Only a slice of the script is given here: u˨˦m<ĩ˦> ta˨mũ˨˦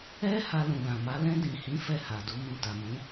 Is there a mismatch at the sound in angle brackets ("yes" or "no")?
yes